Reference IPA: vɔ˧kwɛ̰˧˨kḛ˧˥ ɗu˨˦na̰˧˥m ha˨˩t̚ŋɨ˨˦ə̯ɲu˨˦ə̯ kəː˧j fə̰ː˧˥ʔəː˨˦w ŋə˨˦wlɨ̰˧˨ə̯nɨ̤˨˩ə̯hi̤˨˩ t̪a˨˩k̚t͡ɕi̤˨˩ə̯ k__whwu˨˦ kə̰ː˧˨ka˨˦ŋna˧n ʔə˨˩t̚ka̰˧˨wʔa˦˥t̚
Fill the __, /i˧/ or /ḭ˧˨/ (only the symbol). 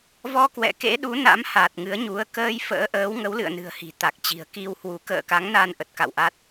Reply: i˧